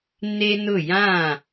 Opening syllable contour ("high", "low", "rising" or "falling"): high